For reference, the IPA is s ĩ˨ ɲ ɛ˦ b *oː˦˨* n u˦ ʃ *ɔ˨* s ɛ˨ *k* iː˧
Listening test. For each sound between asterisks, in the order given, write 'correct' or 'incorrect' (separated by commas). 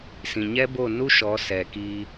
incorrect, incorrect, correct